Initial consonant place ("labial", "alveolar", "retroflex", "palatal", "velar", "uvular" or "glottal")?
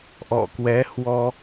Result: glottal